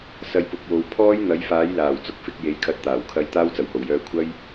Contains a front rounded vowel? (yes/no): yes